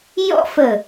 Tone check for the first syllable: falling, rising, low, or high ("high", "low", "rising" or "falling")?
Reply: falling